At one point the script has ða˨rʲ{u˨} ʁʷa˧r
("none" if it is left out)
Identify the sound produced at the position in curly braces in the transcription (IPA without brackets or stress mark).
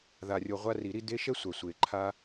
o˨